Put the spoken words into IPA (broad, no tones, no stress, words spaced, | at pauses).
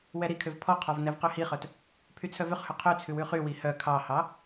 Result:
wɛɾikʰøv pʰɔqʰɔv nɛvqøhiχœt | pʰyt͡sʰœvøχhø qʰøt͡sʰʉ wʉχywi hœ kʰɑhɑ